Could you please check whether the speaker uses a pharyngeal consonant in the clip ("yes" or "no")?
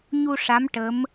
no